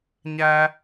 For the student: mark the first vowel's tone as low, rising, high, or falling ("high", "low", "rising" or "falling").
high